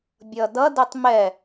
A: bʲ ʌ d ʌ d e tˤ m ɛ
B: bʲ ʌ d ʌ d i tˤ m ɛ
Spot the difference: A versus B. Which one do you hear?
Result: A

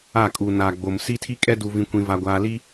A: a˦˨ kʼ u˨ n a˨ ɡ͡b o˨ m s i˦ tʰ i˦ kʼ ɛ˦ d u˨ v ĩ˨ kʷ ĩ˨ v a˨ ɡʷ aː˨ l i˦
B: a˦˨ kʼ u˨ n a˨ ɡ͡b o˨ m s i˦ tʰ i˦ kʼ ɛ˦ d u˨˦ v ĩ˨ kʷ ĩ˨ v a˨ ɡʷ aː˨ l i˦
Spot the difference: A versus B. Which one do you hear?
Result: A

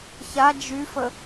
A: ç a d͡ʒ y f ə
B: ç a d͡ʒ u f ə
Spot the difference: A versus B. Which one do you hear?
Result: A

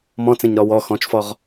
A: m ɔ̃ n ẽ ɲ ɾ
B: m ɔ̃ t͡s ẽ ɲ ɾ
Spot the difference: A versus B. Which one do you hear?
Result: B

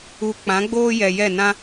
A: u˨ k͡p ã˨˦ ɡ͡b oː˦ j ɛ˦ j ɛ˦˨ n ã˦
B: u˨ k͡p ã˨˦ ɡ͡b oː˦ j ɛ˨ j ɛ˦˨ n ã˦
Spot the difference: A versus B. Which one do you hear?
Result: B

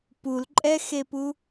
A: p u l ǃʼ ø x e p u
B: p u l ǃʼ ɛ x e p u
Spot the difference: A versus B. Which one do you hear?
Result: B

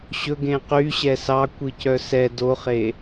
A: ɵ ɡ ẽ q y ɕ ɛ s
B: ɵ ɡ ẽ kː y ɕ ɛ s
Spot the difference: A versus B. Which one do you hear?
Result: A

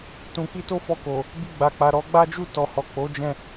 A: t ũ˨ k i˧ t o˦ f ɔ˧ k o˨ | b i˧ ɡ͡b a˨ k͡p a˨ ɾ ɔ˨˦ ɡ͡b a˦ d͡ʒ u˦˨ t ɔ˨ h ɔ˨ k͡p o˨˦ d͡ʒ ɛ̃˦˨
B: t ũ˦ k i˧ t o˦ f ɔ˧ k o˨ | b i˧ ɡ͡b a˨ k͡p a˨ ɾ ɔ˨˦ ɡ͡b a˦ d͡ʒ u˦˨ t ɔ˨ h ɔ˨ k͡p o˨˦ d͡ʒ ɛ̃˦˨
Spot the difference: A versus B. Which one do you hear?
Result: A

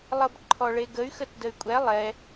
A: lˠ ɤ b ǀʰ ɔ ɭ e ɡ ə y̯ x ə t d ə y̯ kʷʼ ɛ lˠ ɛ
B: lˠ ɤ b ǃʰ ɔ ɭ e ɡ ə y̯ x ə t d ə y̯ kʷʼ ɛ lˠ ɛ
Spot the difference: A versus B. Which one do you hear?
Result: B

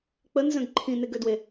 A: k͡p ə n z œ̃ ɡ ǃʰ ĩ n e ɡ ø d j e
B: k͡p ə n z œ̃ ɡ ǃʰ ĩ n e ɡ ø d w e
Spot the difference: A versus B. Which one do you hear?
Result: B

